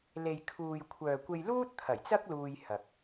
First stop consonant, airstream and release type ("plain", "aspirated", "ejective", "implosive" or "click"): aspirated